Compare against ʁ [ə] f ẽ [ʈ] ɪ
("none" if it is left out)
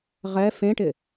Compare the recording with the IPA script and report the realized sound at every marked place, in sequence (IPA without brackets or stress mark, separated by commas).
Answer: ɛ, ʈ